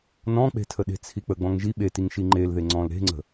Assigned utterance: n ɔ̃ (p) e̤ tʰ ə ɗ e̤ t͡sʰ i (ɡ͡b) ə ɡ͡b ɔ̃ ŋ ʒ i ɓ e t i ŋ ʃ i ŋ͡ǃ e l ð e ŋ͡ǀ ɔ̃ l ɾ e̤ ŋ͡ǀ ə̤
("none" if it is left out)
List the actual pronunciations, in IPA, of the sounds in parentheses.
k͡p, k͡p

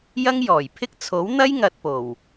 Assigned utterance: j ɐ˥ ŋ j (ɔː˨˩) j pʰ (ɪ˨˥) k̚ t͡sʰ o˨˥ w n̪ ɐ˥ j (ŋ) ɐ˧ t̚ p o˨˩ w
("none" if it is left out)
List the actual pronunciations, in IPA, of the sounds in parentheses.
ɔː˨˩, ɪ˥, ŋ

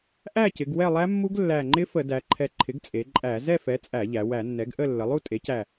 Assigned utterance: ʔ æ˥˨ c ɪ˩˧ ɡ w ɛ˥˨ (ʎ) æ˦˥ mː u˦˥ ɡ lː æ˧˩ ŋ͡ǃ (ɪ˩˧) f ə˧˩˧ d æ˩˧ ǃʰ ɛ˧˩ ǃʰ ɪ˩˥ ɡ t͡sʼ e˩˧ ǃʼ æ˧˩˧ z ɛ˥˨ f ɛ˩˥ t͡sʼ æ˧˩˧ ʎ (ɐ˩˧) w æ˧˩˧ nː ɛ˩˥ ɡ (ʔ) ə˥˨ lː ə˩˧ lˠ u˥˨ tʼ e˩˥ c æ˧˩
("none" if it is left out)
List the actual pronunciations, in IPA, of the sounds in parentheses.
lˠ, ɪ˦˥, æ˩˧, ʔ

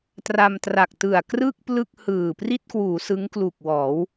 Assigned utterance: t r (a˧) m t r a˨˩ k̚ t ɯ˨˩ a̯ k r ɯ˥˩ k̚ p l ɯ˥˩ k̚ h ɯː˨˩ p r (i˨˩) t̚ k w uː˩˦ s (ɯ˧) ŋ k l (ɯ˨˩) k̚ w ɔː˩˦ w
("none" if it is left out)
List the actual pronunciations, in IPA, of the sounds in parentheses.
a˧, i˥˩, ɯ˦˥, u˨˩

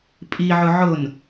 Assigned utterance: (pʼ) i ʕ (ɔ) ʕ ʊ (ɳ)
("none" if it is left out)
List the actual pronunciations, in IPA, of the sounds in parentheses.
pʼ, ʊ, n

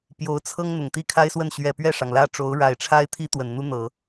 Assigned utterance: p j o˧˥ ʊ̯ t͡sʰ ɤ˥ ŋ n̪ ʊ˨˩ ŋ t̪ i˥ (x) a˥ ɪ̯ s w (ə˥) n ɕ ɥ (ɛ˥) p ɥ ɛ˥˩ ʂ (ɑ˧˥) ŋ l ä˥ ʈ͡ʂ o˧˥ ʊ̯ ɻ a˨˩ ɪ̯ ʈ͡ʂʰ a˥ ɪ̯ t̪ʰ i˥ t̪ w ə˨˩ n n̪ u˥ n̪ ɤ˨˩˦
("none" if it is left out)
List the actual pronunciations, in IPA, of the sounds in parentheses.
kʰ, ə˥˩, ɛ˨˩, ɑ˩

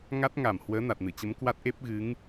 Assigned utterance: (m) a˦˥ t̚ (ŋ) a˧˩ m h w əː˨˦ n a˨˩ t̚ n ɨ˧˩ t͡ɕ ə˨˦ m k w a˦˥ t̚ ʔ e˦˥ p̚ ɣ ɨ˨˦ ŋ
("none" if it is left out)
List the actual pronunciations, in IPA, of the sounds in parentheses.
ŋ, ŋ

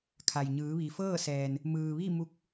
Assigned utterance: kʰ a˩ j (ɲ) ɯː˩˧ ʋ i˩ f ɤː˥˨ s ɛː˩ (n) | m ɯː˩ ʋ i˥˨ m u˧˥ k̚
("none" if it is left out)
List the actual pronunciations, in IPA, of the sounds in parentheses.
ɲ, n

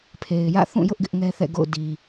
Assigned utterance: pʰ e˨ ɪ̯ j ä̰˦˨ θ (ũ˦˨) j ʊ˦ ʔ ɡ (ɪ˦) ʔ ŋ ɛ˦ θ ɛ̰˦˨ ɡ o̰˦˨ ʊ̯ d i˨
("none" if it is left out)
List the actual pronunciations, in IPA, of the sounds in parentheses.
ũ˦˨, ɪ˦

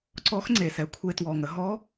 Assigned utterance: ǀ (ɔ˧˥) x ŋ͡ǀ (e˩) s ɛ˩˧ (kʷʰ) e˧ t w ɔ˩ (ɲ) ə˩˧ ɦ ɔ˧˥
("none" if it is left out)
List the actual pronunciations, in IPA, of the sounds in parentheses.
ɔ˧˥, e˩, kʷʰ, ŋ

